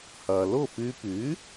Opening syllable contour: low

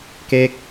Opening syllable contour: falling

